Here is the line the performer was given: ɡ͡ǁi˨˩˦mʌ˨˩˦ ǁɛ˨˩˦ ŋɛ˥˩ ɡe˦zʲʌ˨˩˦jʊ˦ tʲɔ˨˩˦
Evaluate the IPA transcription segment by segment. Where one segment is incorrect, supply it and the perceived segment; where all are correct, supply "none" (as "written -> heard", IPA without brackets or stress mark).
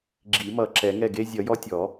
ʊ˦ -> ɔ˦